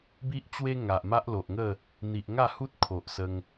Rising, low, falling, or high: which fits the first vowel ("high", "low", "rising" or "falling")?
high